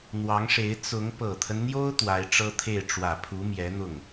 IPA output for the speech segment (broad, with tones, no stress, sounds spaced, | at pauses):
n̪ w ɑ˧˥ ŋ ʂ e˧˥ ɪ̯ t͡s ʊ˧˥ ŋ p ɤ˨˩ t̪ʰ ə˦ n n̪ j o˥ ʊ̯ t̪ w a˧˥ ɪ̯ ʈ͡ʂ ɤ˥ t̪ʰ e˥˩ ɪ̯ ʈ͡ʂ w ä˨˩ pʰ u˧˥ m j ɛ˧˥ n̪ ʊ˥˩ ŋ